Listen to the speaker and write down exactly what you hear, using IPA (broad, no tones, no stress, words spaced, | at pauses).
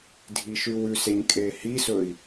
dʱiʃʉwʉseɲ kʼehisɵi̯